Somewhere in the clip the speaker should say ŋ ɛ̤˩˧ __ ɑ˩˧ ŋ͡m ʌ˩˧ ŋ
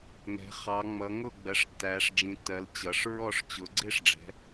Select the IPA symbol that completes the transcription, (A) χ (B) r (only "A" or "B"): A